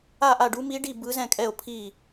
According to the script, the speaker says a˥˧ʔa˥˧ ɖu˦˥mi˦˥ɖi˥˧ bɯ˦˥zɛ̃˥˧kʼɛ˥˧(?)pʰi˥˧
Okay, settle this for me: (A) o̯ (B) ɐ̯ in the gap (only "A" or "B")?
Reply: A